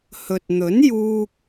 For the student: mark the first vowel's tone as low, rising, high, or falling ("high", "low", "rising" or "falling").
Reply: low